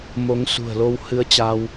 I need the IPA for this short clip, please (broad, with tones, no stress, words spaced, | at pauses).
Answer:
mo˨˦ŋsṳ˨˩ə̯lo˧w hɨ˧ə̯t͡ɕa˧w